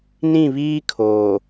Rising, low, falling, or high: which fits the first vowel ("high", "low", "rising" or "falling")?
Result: falling